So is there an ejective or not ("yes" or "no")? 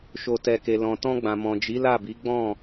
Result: no